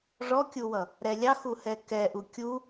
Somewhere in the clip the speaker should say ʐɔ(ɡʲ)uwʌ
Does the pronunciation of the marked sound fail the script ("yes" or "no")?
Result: yes